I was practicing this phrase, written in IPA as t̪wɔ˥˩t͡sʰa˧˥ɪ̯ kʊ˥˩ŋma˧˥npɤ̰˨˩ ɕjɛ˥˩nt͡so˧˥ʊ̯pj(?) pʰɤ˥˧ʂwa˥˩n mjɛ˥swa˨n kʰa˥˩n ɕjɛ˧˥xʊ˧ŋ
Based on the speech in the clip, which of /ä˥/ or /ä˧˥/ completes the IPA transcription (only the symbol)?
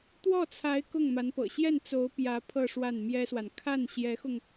ä˧˥